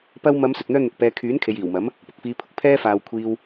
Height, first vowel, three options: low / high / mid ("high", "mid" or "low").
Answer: low